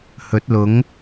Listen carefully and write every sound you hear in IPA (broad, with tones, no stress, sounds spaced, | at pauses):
h ɵ˨˥ t̚ l ʊ˨˥ ŋ